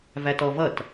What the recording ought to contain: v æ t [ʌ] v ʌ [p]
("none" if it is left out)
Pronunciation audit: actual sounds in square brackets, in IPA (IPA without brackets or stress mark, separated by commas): ɔ, t